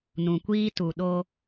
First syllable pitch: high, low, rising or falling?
low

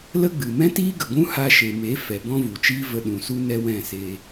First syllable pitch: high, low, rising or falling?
high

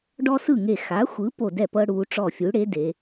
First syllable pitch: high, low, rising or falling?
high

